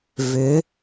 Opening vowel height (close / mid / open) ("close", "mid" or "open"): close